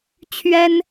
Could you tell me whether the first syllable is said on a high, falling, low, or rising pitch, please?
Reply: high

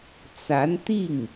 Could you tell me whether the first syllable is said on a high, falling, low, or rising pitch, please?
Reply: rising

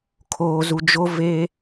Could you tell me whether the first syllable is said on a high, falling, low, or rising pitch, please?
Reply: low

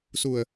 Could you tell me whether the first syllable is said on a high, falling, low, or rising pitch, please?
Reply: low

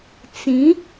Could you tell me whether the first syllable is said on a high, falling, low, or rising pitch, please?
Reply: rising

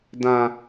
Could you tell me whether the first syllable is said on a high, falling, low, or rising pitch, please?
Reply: high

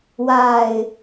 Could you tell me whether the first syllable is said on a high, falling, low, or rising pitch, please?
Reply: low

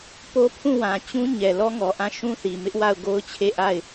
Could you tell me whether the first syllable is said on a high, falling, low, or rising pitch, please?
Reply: high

